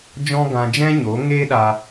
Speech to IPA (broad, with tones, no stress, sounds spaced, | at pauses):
d͡ʒ ɔ̃˦ ɡ ã˧ d͡ʒ ɛ̃˦ ɲ o˨˦ ŋ eː˦ ɗ a˧